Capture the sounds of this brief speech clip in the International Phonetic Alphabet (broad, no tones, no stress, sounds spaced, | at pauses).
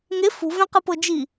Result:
ŋ e f ṳ v ɛ̃ q ɯ p ɤ d͡ʒ i